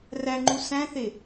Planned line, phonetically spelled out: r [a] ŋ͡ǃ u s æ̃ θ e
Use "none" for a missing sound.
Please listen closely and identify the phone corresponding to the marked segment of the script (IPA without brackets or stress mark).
æ